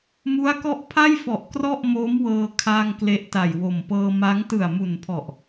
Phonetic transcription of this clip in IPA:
m u˦˥ a̯ k ɔ˥˩ ʔ pʰ a˥˩ j f ɔ˨˩ ʔ k r ɔ˥˩ ʔ m o˦˥ m w ɤː˧ kʰ a˧ ŋ k l e˦˥ ʔ t a˨˩ j w o˨˩ m p ɤː˧ m a˦˥ ŋ t ɯ˨˩ a̯ m u˨˩ n pʰ ɔ˨˩ ʔ

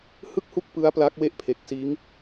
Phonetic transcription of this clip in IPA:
h ɯ˥˩ k̚ h u˥˩ k̚ p ɯ˦˥ a̯ p l a˦˥ k̚ w e˥˩ ʔ pʰ e˨˩ k̚ s iː˦˥ ŋ

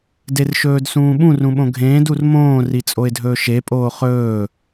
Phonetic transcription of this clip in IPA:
d e r ʃ ɵː d s ũː ɓ ũ r ũ ɓ õ ɡʱ ẽː d u r m õː r i t͡sʼ o ɪ̯ dʱ ɵː ʃ e pʼ oː χ ɵː

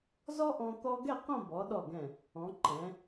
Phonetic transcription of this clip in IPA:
z ɔ˥ ʔ ɔ̃˧ t̪ ɔ˥ ɡ ɛ˥˧ q õ˥˧ b ɔ˩˧ ɗ ɔ˧˩ ɡ ɛ̃˧˩ | ɔ̃˩˧ ǃ ɛ̃˩˧

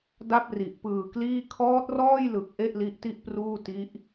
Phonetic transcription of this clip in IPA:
d a˥˩ p̚ r i˨˩ ʔ p ɯː˨˩ k l iː˥˩ kʰ ɔː˦˥ t̚ r ɔː˥˩ j l ɯ˨˩ k̚ ʔ e˥˩ ʔ l i˦˥ ʔ t i˥˩ ʔ p r uː˥˩ t i˦˥ ʔ

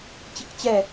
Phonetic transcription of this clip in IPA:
t͡ɕ i k t͡ɕ ɛ

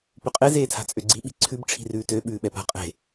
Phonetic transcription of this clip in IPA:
p ʉ qʼ e z eː tʰ a̤ t͡sʼ ø ɡ͡ǀ i ɓ i̤ ǀʰ ʉ b ʈ͡ʂʰ i̤ r ʉː t ø ɓ ʉː ɓ ɛ p a̤ qʼ e̤

